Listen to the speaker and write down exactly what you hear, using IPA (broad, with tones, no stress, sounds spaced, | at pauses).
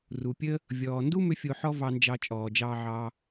r u˩ pʲ ə˥ | vʲ ɔː˩ n d u˥ m ʏ˧ fʲ o˧ ħ ɔ˥ v ɑ˧ n d͡ʒ ɑ˧ t͡ʃʼ ɔː˩ d͡ʒ ɑː˧ ʕ ɑ˧